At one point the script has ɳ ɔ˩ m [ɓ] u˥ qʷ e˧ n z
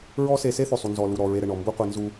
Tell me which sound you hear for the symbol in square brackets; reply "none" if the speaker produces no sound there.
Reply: b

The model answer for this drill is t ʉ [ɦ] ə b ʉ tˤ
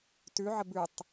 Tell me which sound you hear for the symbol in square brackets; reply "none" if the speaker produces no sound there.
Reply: ʕ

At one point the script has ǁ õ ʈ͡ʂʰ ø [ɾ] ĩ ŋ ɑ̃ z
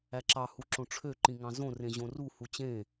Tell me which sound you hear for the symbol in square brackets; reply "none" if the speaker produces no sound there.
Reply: ǃ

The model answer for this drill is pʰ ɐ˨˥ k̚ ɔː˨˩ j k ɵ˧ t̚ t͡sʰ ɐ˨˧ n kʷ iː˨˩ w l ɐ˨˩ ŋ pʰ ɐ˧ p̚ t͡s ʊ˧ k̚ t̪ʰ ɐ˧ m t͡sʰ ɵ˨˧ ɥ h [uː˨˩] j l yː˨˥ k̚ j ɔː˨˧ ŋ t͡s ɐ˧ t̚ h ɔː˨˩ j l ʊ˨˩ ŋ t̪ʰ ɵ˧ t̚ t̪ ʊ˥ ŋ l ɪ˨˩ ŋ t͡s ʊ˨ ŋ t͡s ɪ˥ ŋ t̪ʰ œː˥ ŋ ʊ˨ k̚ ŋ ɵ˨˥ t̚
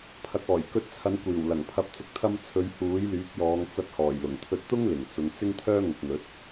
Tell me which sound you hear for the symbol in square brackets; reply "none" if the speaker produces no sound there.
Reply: uː˨˥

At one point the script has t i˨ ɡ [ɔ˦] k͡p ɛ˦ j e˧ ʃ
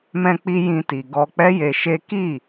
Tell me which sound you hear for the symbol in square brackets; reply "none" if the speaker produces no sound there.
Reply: ɔ˧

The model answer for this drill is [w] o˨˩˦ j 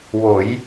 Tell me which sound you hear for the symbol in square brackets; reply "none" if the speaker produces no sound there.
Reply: w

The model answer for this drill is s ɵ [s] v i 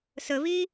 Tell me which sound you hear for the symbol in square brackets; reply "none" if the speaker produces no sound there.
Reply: none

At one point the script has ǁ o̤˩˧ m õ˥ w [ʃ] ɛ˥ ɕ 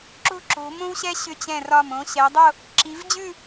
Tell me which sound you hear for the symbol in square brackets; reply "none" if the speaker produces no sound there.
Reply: ɕ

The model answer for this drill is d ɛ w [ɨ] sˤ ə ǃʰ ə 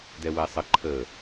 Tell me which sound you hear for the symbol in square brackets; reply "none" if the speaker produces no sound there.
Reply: ɛ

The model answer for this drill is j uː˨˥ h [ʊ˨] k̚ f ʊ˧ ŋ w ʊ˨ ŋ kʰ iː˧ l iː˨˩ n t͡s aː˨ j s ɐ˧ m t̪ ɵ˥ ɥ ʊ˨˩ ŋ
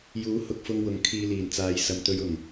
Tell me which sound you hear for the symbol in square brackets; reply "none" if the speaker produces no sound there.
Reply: ʊ˨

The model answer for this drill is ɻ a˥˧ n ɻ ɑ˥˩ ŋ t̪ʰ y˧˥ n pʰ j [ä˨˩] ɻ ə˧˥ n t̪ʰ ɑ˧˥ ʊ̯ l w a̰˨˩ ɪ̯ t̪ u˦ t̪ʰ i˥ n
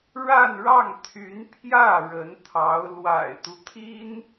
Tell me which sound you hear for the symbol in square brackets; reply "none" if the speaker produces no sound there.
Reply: ä˥˩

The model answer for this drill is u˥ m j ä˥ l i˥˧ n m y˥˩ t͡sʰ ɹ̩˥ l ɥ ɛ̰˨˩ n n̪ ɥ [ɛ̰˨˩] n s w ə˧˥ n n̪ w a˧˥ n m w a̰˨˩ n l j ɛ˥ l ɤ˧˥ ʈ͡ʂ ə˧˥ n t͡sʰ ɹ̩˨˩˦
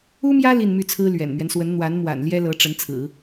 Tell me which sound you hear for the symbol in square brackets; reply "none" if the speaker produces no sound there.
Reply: ɛ˦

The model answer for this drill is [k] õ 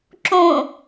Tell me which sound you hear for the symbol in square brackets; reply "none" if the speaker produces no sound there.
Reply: ǁ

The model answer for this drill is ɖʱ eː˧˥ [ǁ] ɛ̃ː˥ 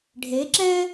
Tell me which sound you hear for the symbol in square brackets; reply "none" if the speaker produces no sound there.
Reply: ǁ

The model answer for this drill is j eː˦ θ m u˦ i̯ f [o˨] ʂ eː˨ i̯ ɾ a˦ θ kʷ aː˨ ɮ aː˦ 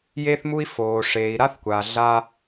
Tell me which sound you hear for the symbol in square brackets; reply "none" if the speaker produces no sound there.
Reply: oː˨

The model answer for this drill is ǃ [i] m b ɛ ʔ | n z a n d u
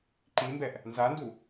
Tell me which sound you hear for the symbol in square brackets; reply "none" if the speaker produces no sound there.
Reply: i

